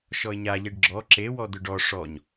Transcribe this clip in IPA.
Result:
ʃ ɔ ɪ̯ ɲ a ʎ e ɖ ɡ͡ǁ ɔ ǁ e w ɔ d̪ ʏ ɖ ɔ ʂ ɔ ɲ

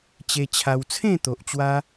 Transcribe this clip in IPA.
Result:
t͡ɕ e˧ t͡ɕʰ a˧ w t͡sʰ ẽ˥˧ t̪ o˨ ʔ t͡ɕ w a˧

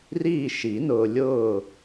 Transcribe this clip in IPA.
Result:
r iː˦˨ ʃ i˨˩˦ n ʊː˨ lʲ ʊː˦˨

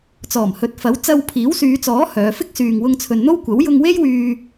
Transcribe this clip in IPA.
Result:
t͡s ɔː˨˩ m h ɵ˨ t̚ f ɐ˨˥ w t͡s ɐ˧ w pʰ iː˨˥ w s yː˨˧ t͡s ɔː˨˥ h œː˨˧ f ɪ˥ k̚ s yː˨ ŋ w ʊ˧ ŋ t͡sʰ ɵ˨ n n̪ o˥ w kʷ ɐ˨˥ w j ʊ˧ ŋ w e˥ j w yː˧

